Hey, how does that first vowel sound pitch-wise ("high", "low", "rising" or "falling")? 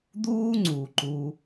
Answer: high